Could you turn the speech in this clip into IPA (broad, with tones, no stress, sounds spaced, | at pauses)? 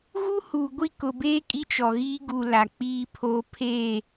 ɣ u˦ h uː˨ ɡʷ i˦˨ k ʊ˨ b eː˦ kʼ i˦ t͡ʃ ɔ˨ ɣ iː˦ ɡ u˨ l a˨ k͡p iː˦ pʰ oː˦ pʰ eː˦˨